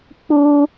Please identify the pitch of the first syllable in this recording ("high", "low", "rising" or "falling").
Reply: high